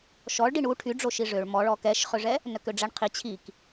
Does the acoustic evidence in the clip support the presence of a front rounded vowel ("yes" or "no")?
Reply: yes